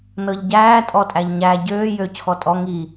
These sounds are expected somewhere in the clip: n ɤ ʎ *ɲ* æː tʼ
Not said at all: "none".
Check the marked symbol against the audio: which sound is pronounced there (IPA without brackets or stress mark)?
ɟ